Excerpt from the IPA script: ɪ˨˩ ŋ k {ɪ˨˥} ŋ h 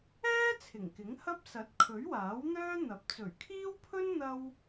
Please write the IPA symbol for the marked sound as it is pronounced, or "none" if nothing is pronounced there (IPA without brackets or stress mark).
ɪ˨˥